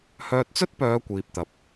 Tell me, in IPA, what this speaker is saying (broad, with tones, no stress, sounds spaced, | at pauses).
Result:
h œː˧ t̚ t͡s ɵ˥ t̚ p œː˨˧ kʷ iː˨ p̚ t̪ ɐ˨ p̚